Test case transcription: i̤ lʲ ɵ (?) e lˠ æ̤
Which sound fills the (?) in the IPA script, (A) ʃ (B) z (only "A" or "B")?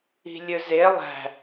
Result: B